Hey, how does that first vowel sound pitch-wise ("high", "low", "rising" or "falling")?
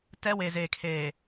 high